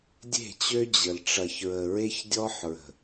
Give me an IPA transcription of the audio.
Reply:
dʲ e̤˦˨ t͡ɕ ø˦ d͡ʑ ə˨ l ʈ͡ʂ ɐ˨ ç ɹ ə˨ ɹ e˦ ç dʲ ɔ˦ ħ ɹ ə̤˨

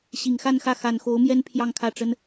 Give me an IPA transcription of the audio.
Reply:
ɕ i˨˩ ŋ x a˥˧ n x ä˥˩ x a˨˩ n x o˧˥ ʊ̯ m j ɛ˥ n pʰ j ɑ˥˧ ŋ kʰ ä˥˩ ʈ͡ʂ ə˥ n

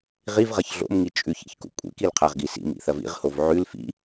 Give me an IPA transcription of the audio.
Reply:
ʁ i v ʁ ɐ ç ɮ o̰ m ŋ i t͡ʃʼ ʉ ç ḭ ç k ṵ kʷʼ ḭ k i l qʰ a ʁ ɡ i s ḭ m ḭ θ ɐ v ḭ ʁ h o v ʕ ʉ l f ḭ

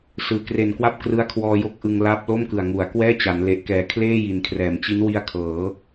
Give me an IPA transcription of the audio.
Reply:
s ɯː˨˩ k r e˨˩ n k w a˦˥ p̚ k r ɯ˦˥ a̯ kʰ w ɔː˧ j o˦˥ k̚ ʔ ɯ˧ ŋ l aː˦˥ p̚ l o˥˩ m k ɯ˨˩ a̯ ŋ u˩˦ a̯ k w ɛː˥˩ t͡ɕ a˩˦ n l e˨˩ ʔ k ɛː˨˩ kʰ l eː˥˩ j i˩˦ n kʰ r ɛː˩˦ m t͡ɕ i˦˥ n w i˦˥ a̯ kʰ ɤː˩˦

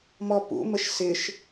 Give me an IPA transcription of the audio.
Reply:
m ɔ p ṵ m ə ʃ s ɪ ʃ

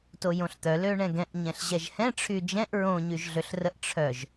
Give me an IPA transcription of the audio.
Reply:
t o j õ ɬ t̪ œ l ø ɳ ɛ̃ ɡ ɛ̃ ʔ ɲ ɛ̃ ɬ ʑ ɛ ʒ h ɛ̃ ʈ͡ʂʰ y d͡ʒ ɛ̃ ʔ ɹ õ ɲ y ʒ ɮ ø ɬ r ə ʔ ʈ͡ʂʰ œ ʒ

